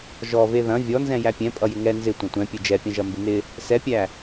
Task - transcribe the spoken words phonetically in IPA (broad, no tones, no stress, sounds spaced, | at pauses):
ʒ ɔ v e ð ɐ̃ vʲ ɔ n z ɛ̃ j æ pʲ ɛ̃ pʼ ʌ j ɪ ŋ ɛ n z ɪ tʷ ɐ̃ tʷ ɛ̃ pʲ e d͡ʒ ɛ pʲ ɐ̃ ʒ ɐ m b ɪ n ɪ | s ɛ pʲ æ